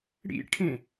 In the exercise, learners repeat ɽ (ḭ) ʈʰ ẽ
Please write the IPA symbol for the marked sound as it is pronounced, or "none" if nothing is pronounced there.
ḭ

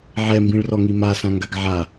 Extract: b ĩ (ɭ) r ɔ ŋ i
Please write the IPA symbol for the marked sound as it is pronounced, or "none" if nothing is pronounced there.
ɭ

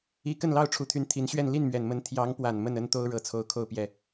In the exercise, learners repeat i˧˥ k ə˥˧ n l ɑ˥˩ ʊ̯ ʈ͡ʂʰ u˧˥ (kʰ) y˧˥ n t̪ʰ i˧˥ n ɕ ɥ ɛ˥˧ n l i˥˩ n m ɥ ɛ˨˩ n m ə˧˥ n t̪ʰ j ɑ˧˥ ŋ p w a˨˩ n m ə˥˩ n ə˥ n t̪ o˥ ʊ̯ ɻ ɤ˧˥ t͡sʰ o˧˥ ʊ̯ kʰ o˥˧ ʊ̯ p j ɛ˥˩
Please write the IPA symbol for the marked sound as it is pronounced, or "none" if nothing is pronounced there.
t̪ʰ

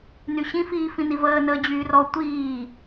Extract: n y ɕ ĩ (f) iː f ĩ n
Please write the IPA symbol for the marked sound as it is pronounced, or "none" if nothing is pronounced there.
f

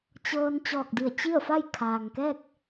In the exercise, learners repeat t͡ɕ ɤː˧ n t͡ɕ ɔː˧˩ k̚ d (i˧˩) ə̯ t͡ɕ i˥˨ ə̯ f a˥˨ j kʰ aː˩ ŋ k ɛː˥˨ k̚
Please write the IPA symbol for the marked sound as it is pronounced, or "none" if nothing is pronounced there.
i˧˩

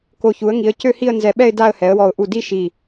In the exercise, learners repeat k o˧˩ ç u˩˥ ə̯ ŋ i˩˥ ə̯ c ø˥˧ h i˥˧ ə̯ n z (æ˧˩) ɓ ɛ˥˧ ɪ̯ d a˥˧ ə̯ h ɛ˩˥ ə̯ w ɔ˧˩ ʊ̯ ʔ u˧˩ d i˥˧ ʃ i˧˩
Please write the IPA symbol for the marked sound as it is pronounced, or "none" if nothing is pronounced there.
ɛ˧˩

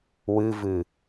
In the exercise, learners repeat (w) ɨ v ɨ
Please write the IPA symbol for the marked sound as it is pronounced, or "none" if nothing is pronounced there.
w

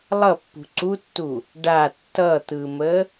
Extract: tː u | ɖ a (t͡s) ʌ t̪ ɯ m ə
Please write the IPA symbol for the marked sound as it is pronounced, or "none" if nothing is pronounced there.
tː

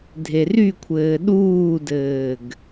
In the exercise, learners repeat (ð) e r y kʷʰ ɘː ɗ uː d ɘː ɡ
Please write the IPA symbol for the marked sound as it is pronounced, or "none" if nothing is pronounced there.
dʱ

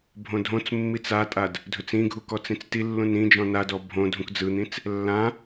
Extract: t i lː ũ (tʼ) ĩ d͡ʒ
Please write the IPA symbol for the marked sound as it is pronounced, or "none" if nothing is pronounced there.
n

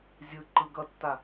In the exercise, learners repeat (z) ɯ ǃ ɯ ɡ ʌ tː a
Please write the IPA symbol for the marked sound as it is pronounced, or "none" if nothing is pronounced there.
zʲ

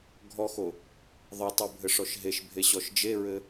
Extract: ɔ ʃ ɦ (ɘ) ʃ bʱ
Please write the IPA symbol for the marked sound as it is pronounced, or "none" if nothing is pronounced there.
e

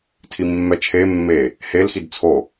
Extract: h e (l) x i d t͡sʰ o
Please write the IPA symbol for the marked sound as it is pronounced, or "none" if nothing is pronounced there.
l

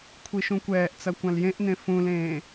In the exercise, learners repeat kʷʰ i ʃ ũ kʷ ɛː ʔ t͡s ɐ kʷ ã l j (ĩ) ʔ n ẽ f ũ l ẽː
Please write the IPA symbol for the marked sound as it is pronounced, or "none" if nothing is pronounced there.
ẽ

